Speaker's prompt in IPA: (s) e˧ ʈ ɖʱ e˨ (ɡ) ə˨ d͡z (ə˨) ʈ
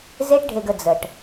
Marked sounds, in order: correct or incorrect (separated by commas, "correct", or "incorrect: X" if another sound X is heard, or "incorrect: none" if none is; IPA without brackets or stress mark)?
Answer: incorrect: z, correct, correct